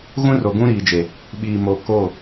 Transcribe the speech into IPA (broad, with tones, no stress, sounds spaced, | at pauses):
ɣ ũ˦ r o˨ ɡ ũ˦ ɾ iː˨ d͡ʒ e˨ | ɓ iː˨ m o˨ k o˦˨